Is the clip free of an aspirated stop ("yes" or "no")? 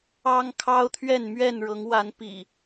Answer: no